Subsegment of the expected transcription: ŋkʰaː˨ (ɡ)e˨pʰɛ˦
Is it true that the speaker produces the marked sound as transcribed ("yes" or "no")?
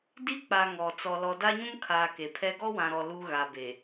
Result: no